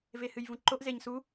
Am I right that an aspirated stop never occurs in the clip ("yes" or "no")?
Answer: yes